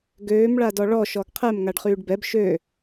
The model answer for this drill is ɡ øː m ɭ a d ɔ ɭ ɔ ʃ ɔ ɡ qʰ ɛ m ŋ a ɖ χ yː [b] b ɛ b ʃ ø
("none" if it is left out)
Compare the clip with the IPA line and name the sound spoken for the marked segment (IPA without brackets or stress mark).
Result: ɖ